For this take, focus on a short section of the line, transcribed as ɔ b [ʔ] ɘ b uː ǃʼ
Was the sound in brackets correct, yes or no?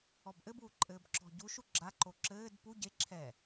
yes